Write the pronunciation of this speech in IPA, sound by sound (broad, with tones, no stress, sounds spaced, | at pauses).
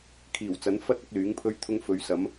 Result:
kʰ iː˨˩ w t͡s ɐ˨˥ n f ɐ˥ t̚ ɐ˨˥ k̚ l yː˨˥ ŋ pʰ ɵ˥ ɥ t̪ʰ ʊ˥ ŋ f ɵ˨˧ ɥ s ɐ˨˥ m